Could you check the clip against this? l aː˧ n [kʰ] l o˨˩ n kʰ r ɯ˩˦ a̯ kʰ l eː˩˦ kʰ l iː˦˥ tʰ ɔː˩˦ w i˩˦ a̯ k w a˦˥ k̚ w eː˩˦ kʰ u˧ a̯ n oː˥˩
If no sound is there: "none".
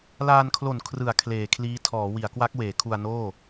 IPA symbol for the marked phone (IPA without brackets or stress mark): kʰ